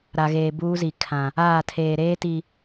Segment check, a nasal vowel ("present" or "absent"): present